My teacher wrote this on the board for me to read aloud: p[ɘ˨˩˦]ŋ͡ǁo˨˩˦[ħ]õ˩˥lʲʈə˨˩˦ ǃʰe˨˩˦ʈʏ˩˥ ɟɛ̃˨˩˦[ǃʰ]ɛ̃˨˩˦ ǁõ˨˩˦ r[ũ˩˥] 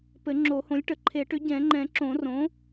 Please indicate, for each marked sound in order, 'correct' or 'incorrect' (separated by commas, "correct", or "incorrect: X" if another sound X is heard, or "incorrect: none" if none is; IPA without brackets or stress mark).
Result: correct, incorrect: h, incorrect: ŋ͡ǃ, incorrect: õ˩˥